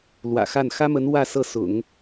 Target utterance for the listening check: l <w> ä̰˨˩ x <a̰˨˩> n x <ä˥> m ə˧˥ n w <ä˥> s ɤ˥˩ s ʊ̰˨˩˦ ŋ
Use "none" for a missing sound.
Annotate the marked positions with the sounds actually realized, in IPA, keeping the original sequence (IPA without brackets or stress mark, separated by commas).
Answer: w, a˥˩, ä˥, ä˥˧